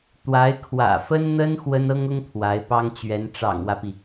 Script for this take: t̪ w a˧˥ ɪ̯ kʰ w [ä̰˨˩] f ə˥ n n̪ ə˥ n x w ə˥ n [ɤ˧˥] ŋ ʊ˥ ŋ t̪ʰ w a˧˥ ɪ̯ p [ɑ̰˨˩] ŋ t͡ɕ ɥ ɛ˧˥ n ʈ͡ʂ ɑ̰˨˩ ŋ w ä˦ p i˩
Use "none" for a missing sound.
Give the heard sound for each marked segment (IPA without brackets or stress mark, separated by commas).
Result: ä̰˨˩, ɤ˥, ɑ˥